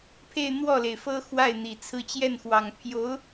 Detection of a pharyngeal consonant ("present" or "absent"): absent